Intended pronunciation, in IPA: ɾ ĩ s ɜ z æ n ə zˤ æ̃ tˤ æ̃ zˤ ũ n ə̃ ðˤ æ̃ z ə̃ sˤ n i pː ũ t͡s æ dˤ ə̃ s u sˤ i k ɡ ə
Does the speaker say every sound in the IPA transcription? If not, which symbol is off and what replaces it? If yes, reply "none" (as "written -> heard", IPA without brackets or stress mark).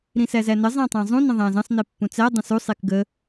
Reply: ɜ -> æ